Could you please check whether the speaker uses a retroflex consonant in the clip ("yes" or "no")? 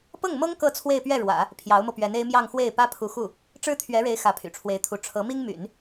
yes